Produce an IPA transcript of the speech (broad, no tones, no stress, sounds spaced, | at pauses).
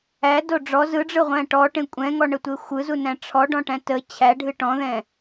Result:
æ d o ɖ͡ʐ ɔ z ɯ ɖ͡ʐ ɯ ʁʷ æ̃ ʈ ɔ ʈ ẽ kʷʼ ɛ̃ ŋ ɔ ɳ ə tʷ e xʷ ɯ z u n æ̃ ʈ͡ʂʰ ɔ ɖ ɔ̃ ʈ æ̃ t ə t͡ɕʰ æ ɖʱ ɨ ʈ ɔ̃ ð ɛ̃